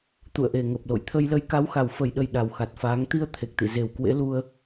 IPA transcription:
t̪ṵ˧˨ə̯ʔe˨˩ŋə˨˩p̚lo̰˧˨j t̪ʰə˧jlə˧j ka˨˦wxa˨˩wfə˨˩jɗə˨˩j ɗa˨˩wxa˨˩t̚faː˨˦ŋ t̪i˧ə̯ t̪ʰe˨˩k̚t̪ḭ˧˨ ze˨˩wkwḛ˧˥lu˧ə̯

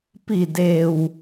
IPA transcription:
pi˧˩ de˩w

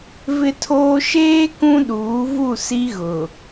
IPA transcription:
vɪ˦tʰoː˦ ʃeː˦ kũ˦ɗuː˨˦vu˦˨ si˦ɣʊ˨

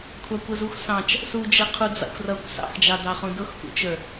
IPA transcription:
kʷʰɑkʷəzuxʷsɑ̃t͡ʃ | sud͡ʒə qʰud͡zɑ̰xʷrʌkʷ sɑ̰xd͡ʒɑdɑχũ dʊxpṵt͡ʃə˞

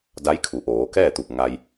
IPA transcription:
da˧˥jkʰu˩˧ʔoː˩˧ kɛː˥˨t̪u˧˩p̚ ŋa˧j

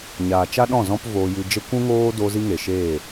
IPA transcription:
ɲaː˨t͡ʃa˦ɗɔ̃˦˨ zɔ̃˦pvoː˧jɨ˧d͡ʒə˦ kʷũ˦ŋoː˦do˧ zi˦ŋe˨ʃeː˦˨

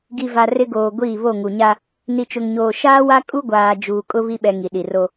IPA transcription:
ɡi˨va˨ rɪ˦ɡoː˨ ɡʷiː˦˨βo˦˨ ŋu˨ɲa˦ | ni˨t͡ʃʊ˨ŋɲoː˨ ʃaː˦wa˦ kʼu˦ɡʷaː˨ d͡ʒuː˨kʼʊ˦ βi˦ɓɛ˨ ŋi˨ɗi˨ro˦

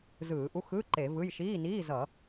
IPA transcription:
zɯː˧˩˧ʔu˧˥˧ xɯ˧˥˧ ǃe˧˩˧vɯ˧˥˧j ʃiː˧˥˧niː˧˥˧ zʌ˧˩˧

